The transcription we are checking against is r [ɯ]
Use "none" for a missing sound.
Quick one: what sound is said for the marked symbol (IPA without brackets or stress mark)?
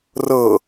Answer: ɤ